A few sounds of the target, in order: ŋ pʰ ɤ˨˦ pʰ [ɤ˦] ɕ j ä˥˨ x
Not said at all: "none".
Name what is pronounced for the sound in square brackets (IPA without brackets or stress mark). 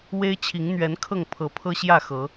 ɤ˦